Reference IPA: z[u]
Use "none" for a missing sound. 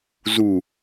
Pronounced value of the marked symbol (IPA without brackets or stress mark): u